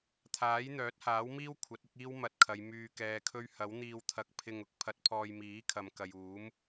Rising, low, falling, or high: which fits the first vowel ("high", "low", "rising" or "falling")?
rising